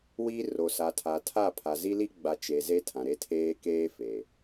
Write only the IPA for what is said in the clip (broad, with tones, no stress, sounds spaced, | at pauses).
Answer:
w i˦ r o˨ s a˨ tʰ a˨ tʰ a˦˨ pʰ a˨ z i˦ l i˦ ɡ͡b a˨˦ t͡ʃ e˨ z e˦ tʰ ã˨ ɾ e˦ tʰ eː˦ k eː˦ f e˨